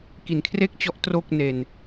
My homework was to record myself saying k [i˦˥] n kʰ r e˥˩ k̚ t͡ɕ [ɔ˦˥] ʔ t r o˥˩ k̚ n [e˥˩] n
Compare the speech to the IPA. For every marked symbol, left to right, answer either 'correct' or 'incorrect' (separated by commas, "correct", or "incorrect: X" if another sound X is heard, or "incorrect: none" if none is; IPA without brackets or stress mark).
incorrect: i˩˦, correct, incorrect: e˧